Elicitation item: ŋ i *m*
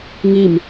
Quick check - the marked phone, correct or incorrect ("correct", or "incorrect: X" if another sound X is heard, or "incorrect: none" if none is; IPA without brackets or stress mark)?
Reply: correct